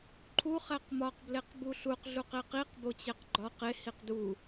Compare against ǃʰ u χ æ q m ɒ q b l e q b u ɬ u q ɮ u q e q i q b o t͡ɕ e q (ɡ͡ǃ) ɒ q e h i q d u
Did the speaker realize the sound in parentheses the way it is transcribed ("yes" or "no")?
yes